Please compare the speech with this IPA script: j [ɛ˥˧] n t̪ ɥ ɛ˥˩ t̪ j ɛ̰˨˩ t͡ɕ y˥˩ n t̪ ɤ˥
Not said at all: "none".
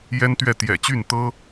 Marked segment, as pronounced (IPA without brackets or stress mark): ɛ˥